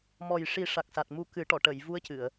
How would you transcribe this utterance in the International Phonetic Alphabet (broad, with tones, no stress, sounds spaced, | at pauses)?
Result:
m ɔ˨˩ j ʂ i˨˩˦ ʂ a˨˩ k̚ s a˨˩ t̚ m u˧ k ɨ˨˩˦ ʈ ɔ˨˩˨ ʈ ə˨˩˨ j v u˧˥ ə̯ c ɨ˨˩˨ ə̯